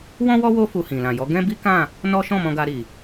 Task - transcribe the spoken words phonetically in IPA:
w ɔ̃˦ w ɔ˦ w o˦ f u˧ h ĩ˨ l ã˨ j ɔ˨˦ ɡ ɛ̃˦ b i˦ k ã˦˨ | n ɔ˦ ʃ ɔ̃˦˨ m ɔ̃˧ ɡ a˧ ɾ i˨

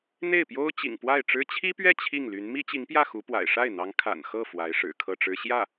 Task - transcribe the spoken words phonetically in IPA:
n̪ e˥˩ ɪ̯ p j o˥ ʊ̯ t͡ɕ ḭ˨˩ ŋ p w a˥˩ ɪ̯ ʈ͡ʂ ɻ̩˥ t͡ɕʰ i˥ p ɥ ɛ˥˧ t͡ɕʰ i˥˩ ŋ l y˧˥ n m i˥ t͡ɕ i˧˥ ŋ p j ä˥˩ x u˧˥ p w a̰˨˩ ɪ̯ ʂ a˥˩ ɪ̯ n̪ ɑ˧˥ ŋ kʰ a̰˨˩ n x ɤ˥˩ f w a˧˥ ɪ̯ ʂ ɻ̩˨˩ kʰ ɤ˥˩ ʈ͡ʂ ɻ̩˥ ɕ j ä˥˩

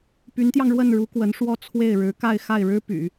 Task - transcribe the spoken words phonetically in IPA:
p y˧˥ n t̪ j ɑ˧ ŋ ɻ w ə˥˩ n ɻ u˧˥ k w ə˧˥ n ʂ w ɔ˥˧ t͡sʰ w e˥˩ ɪ̯ ɻ ɻ̩˧˥ k a˥˧ ɪ̯ x a˥˩ ɪ̯ ɻ ɻ̩˥ p y̰˨˩˦

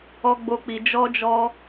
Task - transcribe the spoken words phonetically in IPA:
ɔ˦ ɡ͡b o˦ k͡p i˧ d͡ʒ ɔ˦ d͡ʒ ɔ˦

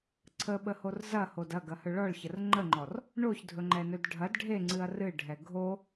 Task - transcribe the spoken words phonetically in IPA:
ǀʰ ə ɓ ə h o r z ɐ h o d ɐ ɡ ɐ h ɵ ɭ ɔ ɭ ç ə r ŋ͡ǃ ə ŋ͡ǃ ɔ r | ɳ o ç dʱ ɵ ŋ͡ǃ ɛ n ɵ d ɖʱ ɐ d ɖʱ e ŋ͡ǀ ɨ ɐ̯ r ɨ ɖʱ ɛ ɡʱ o

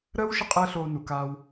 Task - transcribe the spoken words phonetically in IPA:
ɾ əː˦ w ʃ ə˦ qʼ əː˦ ɬ oː˧ n u˨ k aː˧ w

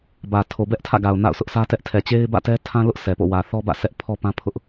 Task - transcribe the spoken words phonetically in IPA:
b ä˨ tʰ o˨ b ɛ˦ ʔ tʰ ä̰˦˨ ɡ a˨ ʊ̯ n a̰˦˨ ʊ̯ sʰ ʊ˦ ʔ sʰ ä˦ t ɛ˦ ʔ tʰ ɛ˨ t͡ɕ e˦ ɪ̯ b ä̰˦˨ t ɛ˦ tʰ ã˦ l ʊ˦ ʔ sʰ ɛ˨ p o̰˦˨ w ä˨ θ ɔ˦ b ä̰˦˨ sʰ ɛ˦ ʔ pʰ ɔ˦ p ã˦ pʰ ʊ˦ ʔ

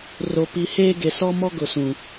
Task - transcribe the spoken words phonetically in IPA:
r o˨ p i˨ h eː˦ ɡ e˨ s ɔ˦ m ɔ˦ ɡ ʊ˨ s ũ˨

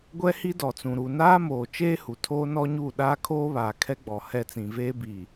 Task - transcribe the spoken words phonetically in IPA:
ɡʷ ɛ˦ h i˦ d ɔ˨ t͡s ũ˨ ɾ u˨ n aː˦ m oː˨ t͡ʃ eː˦ h u˨ tʰ oː˦ n ɔ˦ ɲ u˦˨ ɗ aː˦ kʰ oː˦ β aː˨ kʰ ɛ˦ ɡ͡b ɔ˨ h ɛ˦˨ t͡s ĩ˨ v eː˦ b i˨

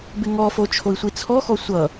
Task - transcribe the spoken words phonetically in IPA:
b ɪ ŋ ɔ f o t͡ʃʰ o i̯ sʷ i t͡sʰ ɔ x ɔ sʷ ʌ

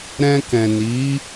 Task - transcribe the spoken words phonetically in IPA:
ɾ ɛ̃˧ k ɛ̃˨ n i˨˦

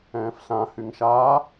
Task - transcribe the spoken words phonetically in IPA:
ɛ̃ː f ɬ ã h y ŋ ʃ aː

